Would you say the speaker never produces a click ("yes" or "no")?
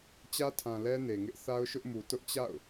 yes